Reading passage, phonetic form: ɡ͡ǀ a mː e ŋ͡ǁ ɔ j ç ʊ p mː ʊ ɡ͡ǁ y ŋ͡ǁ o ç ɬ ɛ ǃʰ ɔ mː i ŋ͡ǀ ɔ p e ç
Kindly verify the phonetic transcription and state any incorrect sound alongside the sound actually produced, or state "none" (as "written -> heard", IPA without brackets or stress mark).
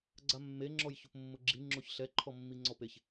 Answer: y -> i